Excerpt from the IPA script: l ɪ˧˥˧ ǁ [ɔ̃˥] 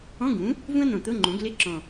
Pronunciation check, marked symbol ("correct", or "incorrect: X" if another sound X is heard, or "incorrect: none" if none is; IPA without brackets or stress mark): incorrect: ɔ̃˨˩